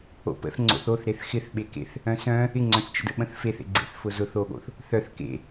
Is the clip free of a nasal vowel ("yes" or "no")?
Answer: no